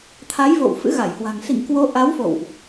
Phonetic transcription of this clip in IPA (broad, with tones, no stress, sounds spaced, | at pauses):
t̪ʰ a˨˦ j v o̰˧˨ w f ɨ̰˧˥ ɣ a˧˩ j h w a̤˨˩ ŋ s ḭ˧˨ ŋ k w o˨˦ ʔ a˨˦ w f o̰˧˨ w ʔ